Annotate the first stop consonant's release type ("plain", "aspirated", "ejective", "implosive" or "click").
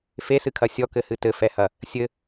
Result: aspirated